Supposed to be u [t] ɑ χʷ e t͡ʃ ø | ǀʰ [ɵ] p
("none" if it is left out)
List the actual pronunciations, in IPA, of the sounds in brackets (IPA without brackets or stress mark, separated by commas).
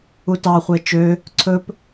t, ɵ